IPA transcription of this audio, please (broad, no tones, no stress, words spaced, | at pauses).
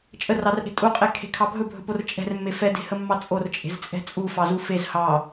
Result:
t͡ʃʼərɑrʔe̤ tʼuqʼekʰe̤kʰɑ bʱɵbʱɵpor t͡ʃʼɛ̤rmːe fɛde̤həmːɑ t͡sʼort͡ʃʼe̤zt͡sʼɛ̤ t͡sʼufɑzu fez hɑ